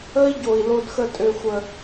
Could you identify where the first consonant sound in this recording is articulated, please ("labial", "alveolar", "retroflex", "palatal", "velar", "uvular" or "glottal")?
palatal